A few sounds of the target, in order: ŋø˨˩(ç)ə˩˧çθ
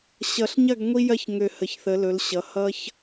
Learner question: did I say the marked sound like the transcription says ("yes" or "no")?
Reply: no